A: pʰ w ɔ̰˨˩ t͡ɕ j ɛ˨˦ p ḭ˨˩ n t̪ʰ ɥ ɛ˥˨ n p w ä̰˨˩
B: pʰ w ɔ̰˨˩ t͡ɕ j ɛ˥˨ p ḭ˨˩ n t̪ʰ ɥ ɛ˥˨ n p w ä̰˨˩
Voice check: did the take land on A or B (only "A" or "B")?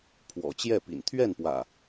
B